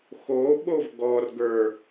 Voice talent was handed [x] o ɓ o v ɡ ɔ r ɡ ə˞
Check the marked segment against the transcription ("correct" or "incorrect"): correct